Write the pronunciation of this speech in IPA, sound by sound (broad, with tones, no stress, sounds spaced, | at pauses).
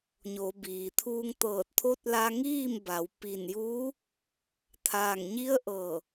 ɲ o˩˧ b iː˩ t̪ʰ uː˧ ŋ t̪ ɤː˧˩ t̚ t̪ʰ o˧˥ t̚ l a˧ ŋ iː˥˨ m b a˩˧ w p i˧˩ n j uː˧˥ | t̪ʰ aː˧˩ ŋ ɲ i˧˥ ə̯ ʔ ɤː˧˩